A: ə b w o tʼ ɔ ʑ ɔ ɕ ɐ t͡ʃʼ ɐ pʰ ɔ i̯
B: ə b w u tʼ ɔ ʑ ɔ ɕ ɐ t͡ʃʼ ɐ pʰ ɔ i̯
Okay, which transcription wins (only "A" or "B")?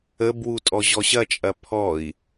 B